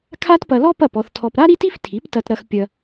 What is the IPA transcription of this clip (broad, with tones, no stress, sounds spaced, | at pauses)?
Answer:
kʰ a˥ t p ɐ˧ l ɔ˥ p ɐ˥˩ p ɔ˧ θ tʰ ɔ˧ p ɾ a˥ ɾ i˥ t i˥ f tʰ i˩˥ p t ɐ˧ t ɾ ɐ˧ x pʲ ɐ˧